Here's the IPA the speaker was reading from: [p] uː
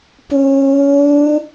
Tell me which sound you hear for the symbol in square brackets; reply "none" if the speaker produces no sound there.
p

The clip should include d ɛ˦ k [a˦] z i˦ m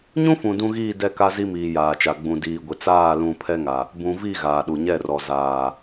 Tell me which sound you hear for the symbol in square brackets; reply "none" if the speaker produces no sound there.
a˦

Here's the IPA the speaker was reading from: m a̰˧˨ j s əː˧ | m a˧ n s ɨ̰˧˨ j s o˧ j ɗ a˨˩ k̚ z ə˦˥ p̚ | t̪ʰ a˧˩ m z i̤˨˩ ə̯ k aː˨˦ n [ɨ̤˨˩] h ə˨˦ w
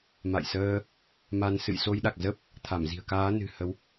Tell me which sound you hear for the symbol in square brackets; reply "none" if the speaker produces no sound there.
ɨ̤˨˩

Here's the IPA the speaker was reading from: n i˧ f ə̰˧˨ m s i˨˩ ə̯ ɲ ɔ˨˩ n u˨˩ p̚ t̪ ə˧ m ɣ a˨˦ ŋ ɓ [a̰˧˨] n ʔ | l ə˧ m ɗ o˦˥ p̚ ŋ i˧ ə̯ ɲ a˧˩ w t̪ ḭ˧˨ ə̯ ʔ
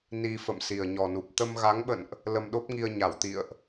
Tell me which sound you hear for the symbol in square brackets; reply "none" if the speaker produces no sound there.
ə̰˧˨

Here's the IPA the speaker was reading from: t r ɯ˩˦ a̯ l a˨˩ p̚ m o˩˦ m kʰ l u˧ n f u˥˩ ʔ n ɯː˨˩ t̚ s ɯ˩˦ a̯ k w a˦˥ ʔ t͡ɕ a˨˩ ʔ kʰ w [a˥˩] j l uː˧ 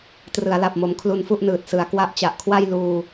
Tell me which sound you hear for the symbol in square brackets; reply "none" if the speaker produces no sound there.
a˥˩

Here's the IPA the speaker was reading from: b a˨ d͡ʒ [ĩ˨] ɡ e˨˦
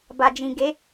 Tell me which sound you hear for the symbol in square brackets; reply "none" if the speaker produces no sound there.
ĩ˨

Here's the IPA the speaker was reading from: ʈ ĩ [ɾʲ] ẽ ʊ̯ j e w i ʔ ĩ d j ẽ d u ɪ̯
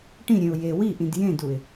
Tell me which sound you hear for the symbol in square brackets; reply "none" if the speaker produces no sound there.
ɾʲ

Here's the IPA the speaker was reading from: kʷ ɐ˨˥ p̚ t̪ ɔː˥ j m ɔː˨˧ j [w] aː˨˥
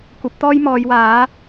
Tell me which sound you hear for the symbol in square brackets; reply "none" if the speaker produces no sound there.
w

